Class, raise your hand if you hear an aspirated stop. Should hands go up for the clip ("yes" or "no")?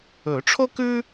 yes